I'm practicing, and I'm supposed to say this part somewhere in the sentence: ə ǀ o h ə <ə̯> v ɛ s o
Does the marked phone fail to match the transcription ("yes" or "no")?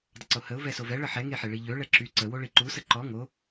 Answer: yes